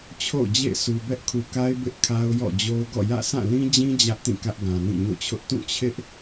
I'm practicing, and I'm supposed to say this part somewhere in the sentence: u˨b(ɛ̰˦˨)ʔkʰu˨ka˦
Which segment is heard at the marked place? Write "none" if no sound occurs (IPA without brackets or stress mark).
ɛ˦